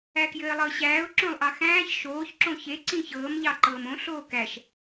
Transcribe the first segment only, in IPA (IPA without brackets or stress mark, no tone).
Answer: æ